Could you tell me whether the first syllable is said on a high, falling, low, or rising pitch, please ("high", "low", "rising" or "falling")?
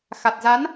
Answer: low